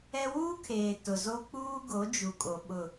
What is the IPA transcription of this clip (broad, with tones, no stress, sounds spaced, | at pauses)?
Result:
ɛ˦ w uː˦ kʰ eː˨ t ʊ˨ z o˦ k͡p uː˦ ɡ o˨˦ d͡ʒ u˨ kʼ o˨ ɓ ʊ˨